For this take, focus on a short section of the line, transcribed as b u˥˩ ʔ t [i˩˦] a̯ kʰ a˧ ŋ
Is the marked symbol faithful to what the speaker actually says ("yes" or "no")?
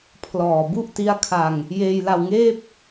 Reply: no